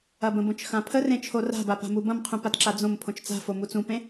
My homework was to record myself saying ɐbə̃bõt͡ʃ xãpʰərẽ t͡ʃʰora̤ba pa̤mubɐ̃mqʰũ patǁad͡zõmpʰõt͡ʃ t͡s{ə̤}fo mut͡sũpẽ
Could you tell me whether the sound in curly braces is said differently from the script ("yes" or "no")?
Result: yes